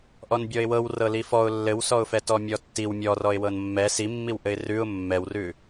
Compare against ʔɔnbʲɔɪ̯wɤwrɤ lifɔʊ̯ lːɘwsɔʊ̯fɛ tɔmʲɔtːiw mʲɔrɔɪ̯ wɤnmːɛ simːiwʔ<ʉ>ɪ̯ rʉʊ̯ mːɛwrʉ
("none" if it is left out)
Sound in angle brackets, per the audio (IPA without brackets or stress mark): ɘ